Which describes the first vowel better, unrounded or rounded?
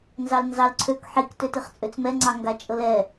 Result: unrounded